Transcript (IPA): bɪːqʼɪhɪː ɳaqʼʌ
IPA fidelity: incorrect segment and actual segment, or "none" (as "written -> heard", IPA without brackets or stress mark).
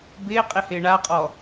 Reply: ʌ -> ɔ